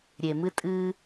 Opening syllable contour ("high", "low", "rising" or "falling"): low